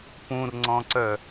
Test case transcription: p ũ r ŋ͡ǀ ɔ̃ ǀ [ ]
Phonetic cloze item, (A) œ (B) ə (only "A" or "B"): A